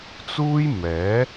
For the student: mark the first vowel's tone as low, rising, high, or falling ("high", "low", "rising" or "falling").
high